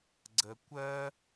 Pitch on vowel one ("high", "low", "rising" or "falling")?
low